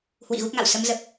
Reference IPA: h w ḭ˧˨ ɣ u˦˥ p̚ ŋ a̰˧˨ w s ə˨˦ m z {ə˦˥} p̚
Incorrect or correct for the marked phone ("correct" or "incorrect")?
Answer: incorrect